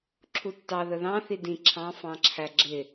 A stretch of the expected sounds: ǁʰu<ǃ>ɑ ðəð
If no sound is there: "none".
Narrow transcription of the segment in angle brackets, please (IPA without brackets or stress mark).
tː